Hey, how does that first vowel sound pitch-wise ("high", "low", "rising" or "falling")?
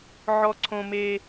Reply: high